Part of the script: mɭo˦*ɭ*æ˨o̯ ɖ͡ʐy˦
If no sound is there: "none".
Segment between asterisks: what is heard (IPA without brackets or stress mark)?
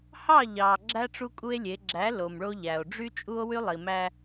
ʎ